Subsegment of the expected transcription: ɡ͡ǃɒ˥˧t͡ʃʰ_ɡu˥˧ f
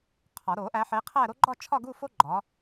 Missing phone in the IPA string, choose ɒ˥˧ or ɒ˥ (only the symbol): ɒ˥˧